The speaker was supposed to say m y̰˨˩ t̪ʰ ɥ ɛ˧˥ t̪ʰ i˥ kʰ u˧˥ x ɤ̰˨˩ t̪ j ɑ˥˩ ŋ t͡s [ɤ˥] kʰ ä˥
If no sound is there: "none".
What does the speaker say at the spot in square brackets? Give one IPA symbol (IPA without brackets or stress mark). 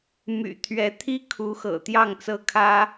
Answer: ɤ˥